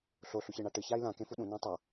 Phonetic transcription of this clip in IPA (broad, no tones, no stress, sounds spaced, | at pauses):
ɬ o ɬ u ç e ɳ a ʈ ɨ ç a i̯ l ã k ẽ f u ɗ ũ n ã tˤ a